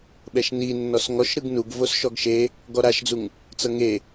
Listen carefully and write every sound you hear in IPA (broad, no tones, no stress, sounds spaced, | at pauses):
ɓ ɛ ʃ n i nː ɔ s ŋ ɔ ʃ ɾ ɯ ɡ n u ɡ v o s ʃ ɔ ɡ ʃ e | ɡ ɔ ɾ a ʃ d͡z u ŋ | t͡s ɤ ŋ e